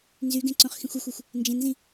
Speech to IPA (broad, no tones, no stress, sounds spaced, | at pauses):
n z y ɡ ẽ ǀ õ χ x ĩ xʷ o xʷ u xʷ | n d͡ʒ ẽ n z ĩ